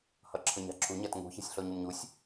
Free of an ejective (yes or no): yes